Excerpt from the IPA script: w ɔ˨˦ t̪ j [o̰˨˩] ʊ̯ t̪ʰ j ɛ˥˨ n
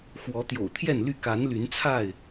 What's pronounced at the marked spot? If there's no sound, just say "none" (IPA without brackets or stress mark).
o̰˨˩